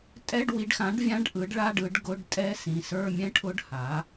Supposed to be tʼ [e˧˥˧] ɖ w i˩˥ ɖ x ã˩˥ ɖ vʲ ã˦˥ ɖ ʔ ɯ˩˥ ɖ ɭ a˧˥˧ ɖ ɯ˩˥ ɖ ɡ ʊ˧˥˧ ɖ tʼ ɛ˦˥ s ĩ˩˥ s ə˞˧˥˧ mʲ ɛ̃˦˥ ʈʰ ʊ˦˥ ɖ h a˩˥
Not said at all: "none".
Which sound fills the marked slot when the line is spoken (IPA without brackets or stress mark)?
ɛ˧˥˧